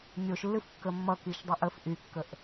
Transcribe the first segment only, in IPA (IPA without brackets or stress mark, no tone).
nʲ